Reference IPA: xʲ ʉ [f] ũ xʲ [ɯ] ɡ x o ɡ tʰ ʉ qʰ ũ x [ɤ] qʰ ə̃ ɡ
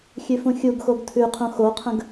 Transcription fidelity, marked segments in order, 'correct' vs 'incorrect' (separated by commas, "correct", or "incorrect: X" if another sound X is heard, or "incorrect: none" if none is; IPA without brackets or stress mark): correct, incorrect: u, incorrect: o